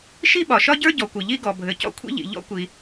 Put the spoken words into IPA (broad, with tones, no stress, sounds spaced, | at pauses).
ʃ i˥ ɓ ɒ˩ ʃ ɒ˥ ɟ ə˞˥ ɟ ɔ˩ kʷ ɘ˩ ʎ i˥ ɡ ɔ˩ bʱ ɘ˩ c ɔ̰˥ kʷʰ ḭ˥ ʎ ḭ˩ ʎ ɔ̰˥ kʷ i˩